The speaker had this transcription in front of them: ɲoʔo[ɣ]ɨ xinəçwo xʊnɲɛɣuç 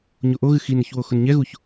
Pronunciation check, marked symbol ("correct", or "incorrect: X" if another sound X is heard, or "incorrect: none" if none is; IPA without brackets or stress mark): correct